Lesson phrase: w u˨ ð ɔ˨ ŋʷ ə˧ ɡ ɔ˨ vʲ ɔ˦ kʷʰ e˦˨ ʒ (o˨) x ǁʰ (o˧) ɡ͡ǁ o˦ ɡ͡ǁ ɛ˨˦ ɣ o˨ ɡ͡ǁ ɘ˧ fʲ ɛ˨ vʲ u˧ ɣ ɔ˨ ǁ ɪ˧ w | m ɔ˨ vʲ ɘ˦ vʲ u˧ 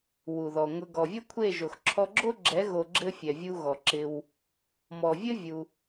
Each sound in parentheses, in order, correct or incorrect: correct, incorrect: ɔ˧

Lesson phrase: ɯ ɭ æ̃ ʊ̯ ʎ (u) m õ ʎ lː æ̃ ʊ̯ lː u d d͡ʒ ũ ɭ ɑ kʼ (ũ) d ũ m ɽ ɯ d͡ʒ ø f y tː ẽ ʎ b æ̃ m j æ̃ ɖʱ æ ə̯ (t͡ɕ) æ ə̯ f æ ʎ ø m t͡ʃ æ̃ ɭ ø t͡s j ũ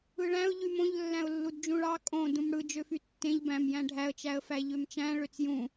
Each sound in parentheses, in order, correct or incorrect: incorrect: y, incorrect: õ, incorrect: t͡ʃ

